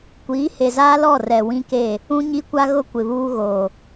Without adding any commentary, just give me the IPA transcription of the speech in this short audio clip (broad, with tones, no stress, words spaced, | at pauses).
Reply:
kʷiː˨˦he˨zaː˦lɔ˦˨ rɛ˨wĩ˦ke˦˨ | ũ˦ɲi˦kʷa˦ɣʊ˦ kʷɪ˨βuː˦ɣoː˨